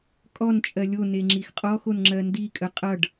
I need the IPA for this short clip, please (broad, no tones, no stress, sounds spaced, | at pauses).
kʼ ɔ n t͡ʃʼ ɜ lʲ o n e ŋ͡ǁ i x qʼ ɔ x o n ŋ͡ǁ ɜ n d i kʼ ə qʼ ʌ ɖ